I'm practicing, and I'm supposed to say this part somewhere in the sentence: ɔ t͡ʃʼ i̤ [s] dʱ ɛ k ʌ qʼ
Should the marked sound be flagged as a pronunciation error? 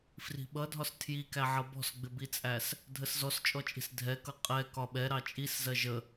no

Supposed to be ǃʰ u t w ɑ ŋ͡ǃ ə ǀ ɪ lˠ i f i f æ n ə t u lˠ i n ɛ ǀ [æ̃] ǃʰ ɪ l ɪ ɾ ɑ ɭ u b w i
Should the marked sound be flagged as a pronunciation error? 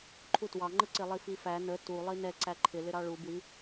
yes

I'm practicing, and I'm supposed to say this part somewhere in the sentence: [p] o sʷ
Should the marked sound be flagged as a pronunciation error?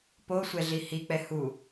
no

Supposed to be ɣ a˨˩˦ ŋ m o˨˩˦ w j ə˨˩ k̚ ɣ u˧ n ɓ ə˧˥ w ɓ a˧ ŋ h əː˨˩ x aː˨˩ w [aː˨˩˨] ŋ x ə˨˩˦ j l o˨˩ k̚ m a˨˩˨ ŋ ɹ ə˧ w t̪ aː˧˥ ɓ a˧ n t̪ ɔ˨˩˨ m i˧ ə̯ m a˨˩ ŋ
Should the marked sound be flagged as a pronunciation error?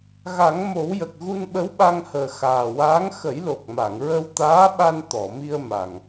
yes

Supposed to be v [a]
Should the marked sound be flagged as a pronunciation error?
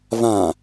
yes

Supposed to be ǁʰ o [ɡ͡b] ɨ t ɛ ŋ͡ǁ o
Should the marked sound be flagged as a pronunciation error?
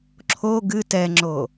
yes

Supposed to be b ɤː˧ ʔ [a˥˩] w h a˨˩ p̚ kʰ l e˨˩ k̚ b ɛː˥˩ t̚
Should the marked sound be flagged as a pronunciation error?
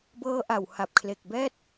yes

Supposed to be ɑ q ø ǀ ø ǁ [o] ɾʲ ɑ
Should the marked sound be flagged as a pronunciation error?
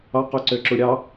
yes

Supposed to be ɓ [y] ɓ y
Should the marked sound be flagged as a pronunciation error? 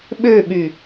yes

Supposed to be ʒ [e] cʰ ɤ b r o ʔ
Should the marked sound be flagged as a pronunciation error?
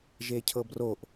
no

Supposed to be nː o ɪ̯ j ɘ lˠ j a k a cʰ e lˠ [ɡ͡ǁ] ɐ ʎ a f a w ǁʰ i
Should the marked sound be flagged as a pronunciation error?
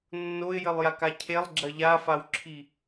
no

